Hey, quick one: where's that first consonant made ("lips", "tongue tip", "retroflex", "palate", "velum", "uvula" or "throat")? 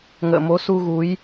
velum